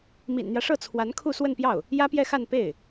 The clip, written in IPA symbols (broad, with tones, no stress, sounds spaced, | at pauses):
m ḭ˨˩ n n̪ j ä˦ ʂ ɤ˥˩ t͡sʰ w a˧˥ n kʰ u˥˧ s w ə˥˧ n p j ɑ˥˩ ʊ̯ | j ä˥ p j ɛ˥˧ x a˥˧ n p e˥˩ ɪ̯